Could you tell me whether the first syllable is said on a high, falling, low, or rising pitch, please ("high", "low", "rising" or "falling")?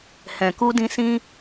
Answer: low